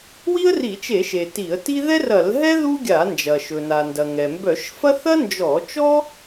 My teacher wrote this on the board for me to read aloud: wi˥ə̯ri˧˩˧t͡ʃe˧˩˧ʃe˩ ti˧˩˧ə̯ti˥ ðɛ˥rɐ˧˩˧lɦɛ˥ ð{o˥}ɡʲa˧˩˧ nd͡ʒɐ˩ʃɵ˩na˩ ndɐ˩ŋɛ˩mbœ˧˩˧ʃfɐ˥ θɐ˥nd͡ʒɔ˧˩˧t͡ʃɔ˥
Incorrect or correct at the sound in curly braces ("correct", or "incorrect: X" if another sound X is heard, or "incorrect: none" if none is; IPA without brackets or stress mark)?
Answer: incorrect: u˥